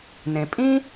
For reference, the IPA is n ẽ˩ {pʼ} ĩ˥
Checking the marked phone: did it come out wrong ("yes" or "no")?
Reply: no